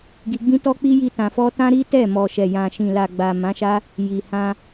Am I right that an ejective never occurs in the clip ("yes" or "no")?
yes